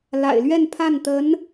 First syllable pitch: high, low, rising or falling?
low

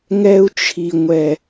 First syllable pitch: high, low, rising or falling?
low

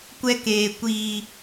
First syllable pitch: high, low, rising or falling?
high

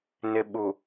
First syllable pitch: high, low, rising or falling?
low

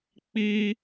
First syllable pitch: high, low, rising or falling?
high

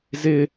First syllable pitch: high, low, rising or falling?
high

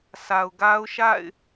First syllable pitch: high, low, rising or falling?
low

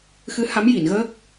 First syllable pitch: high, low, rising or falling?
rising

